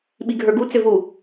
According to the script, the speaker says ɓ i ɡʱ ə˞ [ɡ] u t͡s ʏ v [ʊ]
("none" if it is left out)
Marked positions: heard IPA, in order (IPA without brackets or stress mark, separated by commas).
ɡ, u